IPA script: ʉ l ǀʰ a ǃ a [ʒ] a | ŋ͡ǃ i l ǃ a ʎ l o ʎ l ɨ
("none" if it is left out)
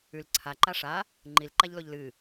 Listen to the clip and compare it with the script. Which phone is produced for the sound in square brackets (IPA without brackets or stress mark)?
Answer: ʂ